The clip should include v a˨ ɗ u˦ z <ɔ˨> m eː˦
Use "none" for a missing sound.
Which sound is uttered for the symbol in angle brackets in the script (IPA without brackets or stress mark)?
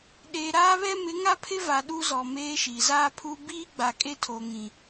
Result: ɔ˨